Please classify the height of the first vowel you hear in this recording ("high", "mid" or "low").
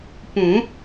high